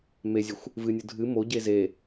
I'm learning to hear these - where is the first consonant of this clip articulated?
lips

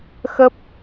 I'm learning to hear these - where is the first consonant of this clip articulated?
velum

